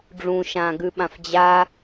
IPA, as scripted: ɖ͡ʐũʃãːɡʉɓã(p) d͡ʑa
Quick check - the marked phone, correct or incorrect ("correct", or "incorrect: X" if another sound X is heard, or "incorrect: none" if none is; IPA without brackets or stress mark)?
incorrect: f